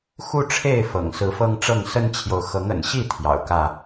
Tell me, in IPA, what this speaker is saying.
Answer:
xu˦ʈ͡ʂʰe˥˨ɪ̯ fɤ̰˨˩ŋsɹ̩˨˦fɤ˦ŋ ʈ͡ʂɤ˥˨ŋ sə˦nt͡ɕʰjo˨ʊ̯ xɤ˨˦ŋə̰˨˩nɕi˥˨ t̪ʰjɑ̰˨˩ʊ̯kä˥˨

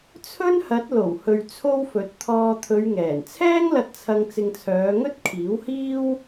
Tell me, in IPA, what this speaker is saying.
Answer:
t͡sʰɵ˥nhɐ˨˥t̚lo˨˩whɵ˨ɥ t͡sʰo˥wfɵ˨˥t̚ t̪ʰɔː˧t̪ʰɵ˨˧ɥŋɛː˨˩n t͡sʰɛː˥ŋlɐ˧t̚ t͡sʰɐ˧ŋ t͡sɪ˧ŋt͡sʰœː˨˧ŋɵ˥t̚kʰiː˨˥w hiː˥w

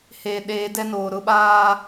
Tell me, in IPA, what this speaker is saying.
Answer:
heː˨ɗeː˨˦dɛ˦noː˨ ɾʊ˦ɓaː˦

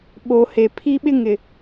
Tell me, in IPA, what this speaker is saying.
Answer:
ɓo˨ he˨pʰi˦ɓɪ˦ ŋɪ˨

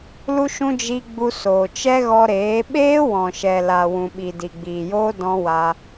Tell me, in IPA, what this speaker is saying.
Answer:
lu˧ʃũ˧ d͡ʒi˧ ɡ͡bu˧soː˨t͡ʃɛ˦ ɣɔ˧ɾeː˨˦ ɓeː˦wɔ̃˨ʃɛ˨la˨ wũ˨ɓi˨di˨ ɡ͡biː˨joː˦ dɔ̃˦ wa˧

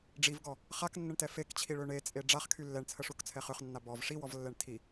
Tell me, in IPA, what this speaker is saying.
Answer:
ɖ͡ʐivɡɔ | χaknːəɳtɛ fekt͡ɕʰiɭø ɳet͡sʼe ɖ͡ʐaχkʰy lːɛɳt͡sʰəʂukt͡sʰɛ χøχnːa bɔv ʂiwɔvlːɛɳ tʰi

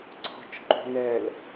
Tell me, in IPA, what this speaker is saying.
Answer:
ǀʰɔ̤t͡ʃǃo̤nɛl

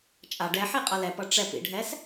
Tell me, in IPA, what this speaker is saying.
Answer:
t͡ʃʼa ɖɛħeqʼʌ lɛpʌ ʈ͡ʂɛp ḭɖʱɛs

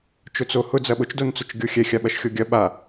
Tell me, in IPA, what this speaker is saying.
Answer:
t͡ʃʊt͡so hʊ d͡zɐɓʊt͡ʃ dont͡sʊt͡ʃɡʲoxʲɛ xʲaɓɐʃxʲoɡʲɐ ɓa

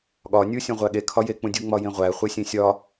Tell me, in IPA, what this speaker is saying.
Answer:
ɠɒnʲu sʲõʁʷæɠekʰɒ jek͡pũdʲu ŋ͡mɒjẽʁʷæ χʷesʲẽsʲɒ

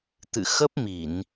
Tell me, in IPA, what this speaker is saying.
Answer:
t̪ɨ̰˧˨xə˦˥p̚mi˧˩˨n

